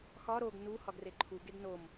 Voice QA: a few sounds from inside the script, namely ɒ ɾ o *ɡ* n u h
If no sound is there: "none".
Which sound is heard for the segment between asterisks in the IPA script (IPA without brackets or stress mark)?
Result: ɡ